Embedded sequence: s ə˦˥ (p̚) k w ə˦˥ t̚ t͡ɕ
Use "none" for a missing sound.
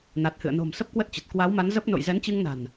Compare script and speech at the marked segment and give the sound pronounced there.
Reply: p̚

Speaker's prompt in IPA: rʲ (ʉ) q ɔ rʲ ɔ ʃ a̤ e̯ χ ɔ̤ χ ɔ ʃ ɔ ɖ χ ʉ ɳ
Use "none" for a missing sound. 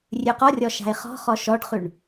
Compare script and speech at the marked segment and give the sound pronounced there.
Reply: ʉ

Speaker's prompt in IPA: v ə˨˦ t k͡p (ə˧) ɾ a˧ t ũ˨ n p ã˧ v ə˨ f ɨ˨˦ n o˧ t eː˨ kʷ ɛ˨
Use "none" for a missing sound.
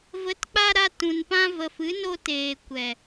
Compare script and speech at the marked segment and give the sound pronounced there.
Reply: a˧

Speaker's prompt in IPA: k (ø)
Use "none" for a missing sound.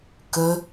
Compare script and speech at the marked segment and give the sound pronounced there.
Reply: ø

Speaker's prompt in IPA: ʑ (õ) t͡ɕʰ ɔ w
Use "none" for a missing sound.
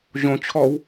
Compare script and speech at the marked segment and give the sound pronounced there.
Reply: õ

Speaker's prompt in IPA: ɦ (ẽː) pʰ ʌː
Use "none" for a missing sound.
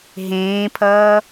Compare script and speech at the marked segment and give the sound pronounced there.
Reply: ẽː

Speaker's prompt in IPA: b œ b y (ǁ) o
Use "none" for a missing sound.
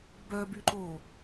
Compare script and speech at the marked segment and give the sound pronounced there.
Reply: ǃ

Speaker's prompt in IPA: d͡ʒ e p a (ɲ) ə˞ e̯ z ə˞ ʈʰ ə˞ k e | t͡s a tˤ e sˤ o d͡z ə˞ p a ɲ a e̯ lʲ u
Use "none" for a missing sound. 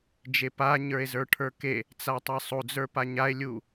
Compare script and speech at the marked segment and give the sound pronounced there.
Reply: ɲ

